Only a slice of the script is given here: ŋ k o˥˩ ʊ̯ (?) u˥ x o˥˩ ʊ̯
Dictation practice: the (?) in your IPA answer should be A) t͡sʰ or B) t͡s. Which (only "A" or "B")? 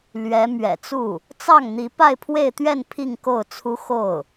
A